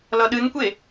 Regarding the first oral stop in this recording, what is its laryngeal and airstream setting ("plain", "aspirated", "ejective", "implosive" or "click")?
implosive